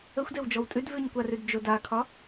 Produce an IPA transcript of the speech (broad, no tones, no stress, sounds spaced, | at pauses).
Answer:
ə xʷ d e w d͡ʒ ɔ w tʼ ʉ d v ʉ ɲ kʷ a r ʉ d d͡ʒ o d a kʰ ɒ